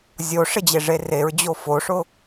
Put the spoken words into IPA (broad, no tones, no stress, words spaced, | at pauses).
zʲoʂɪd͡ʑeʐe reɹd͡ʑo foʂʊ